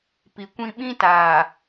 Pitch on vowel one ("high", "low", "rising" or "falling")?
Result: low